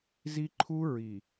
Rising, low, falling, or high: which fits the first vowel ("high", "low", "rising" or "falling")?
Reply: high